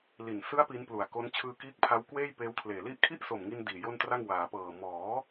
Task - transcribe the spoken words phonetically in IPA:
li˨˩n sɯ˦˥a̯ pi˦˥nplu˨˩a̯ko˦˥n t͡ɕʰɯː˧kiː˦˥k̚pʰa˦˥w kweː˥˩jpeː˦˥wkʰleː˨˩li˥˩ʔ kʰi˥˩ʔso˨˩mŋi˧n diː˨˩jo˥˩ntra˥˩ŋ waː˩˦pɤː˨˩ mɔː˩˦

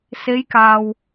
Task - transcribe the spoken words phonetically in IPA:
se˨˧jkaː˨w

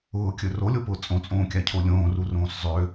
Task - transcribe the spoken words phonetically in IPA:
ʊːkʲɵ rolʲopʊː t͡sʼõt͡sʼõːkʲacʰo lʲõːrurõːs zˤø

